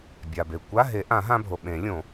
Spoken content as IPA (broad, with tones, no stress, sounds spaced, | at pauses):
bʲ a˩ b e˩ kʷ a˧˥˧ ɦ e˨˩˦ ʔ ã˨˩˦ ɦ ã˧ bʱ o˩ ɓ ẽ˨˩˦ lʲ õ˨˩˦